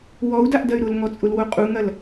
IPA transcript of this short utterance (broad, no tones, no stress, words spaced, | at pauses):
wɔu̯daʔdɐy̯ ɾʊlŋɔt͡sʼʊlwo qʼuŋɐl